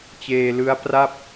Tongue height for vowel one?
mid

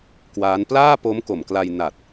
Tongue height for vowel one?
low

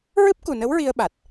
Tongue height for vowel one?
high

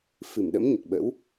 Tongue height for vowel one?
high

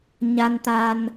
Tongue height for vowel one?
low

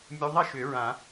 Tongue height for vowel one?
high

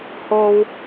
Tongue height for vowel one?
mid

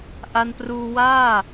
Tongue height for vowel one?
low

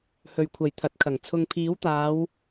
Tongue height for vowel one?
mid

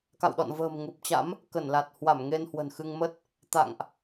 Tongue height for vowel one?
low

